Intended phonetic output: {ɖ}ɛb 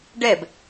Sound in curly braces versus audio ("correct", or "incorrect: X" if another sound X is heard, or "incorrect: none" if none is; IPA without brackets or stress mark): correct